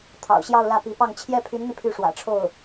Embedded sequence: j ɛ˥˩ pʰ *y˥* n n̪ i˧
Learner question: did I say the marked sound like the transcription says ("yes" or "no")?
no